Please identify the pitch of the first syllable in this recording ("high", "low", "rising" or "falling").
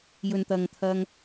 low